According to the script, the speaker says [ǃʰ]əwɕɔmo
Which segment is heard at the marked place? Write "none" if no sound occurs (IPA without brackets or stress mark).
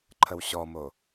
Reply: ǃʰ